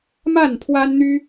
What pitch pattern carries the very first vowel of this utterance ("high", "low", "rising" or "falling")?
falling